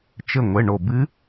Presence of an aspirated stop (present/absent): absent